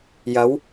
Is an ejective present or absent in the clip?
absent